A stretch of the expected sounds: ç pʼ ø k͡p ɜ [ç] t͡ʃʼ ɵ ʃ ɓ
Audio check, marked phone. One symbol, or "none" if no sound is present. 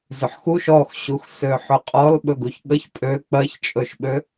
ç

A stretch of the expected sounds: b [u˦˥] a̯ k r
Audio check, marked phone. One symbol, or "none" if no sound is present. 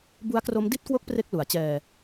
u˦˥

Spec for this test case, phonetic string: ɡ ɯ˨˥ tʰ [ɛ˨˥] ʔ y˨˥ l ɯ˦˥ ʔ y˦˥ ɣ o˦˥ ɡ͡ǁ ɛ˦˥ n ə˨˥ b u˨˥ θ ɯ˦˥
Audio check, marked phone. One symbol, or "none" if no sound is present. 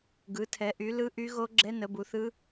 ɛ˨˥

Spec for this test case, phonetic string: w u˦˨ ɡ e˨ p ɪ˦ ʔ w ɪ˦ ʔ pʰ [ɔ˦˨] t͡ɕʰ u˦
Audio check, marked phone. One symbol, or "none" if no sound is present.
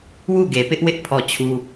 ɔ˦˨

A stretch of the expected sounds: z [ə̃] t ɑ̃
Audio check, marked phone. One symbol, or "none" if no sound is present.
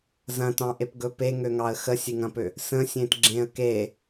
ɐ̃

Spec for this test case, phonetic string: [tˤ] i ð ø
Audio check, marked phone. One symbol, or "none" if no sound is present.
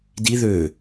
d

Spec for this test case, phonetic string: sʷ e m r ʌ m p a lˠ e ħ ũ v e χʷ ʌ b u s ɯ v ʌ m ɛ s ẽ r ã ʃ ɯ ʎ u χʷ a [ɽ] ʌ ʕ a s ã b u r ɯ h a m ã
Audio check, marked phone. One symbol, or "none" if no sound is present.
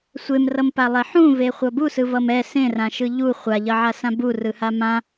ʎ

